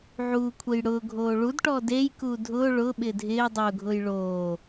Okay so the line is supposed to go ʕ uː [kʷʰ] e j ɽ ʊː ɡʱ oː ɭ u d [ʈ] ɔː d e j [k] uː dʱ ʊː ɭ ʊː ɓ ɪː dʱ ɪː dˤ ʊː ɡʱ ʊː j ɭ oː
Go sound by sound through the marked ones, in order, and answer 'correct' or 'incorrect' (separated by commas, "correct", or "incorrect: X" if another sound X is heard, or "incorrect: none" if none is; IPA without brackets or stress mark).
correct, correct, correct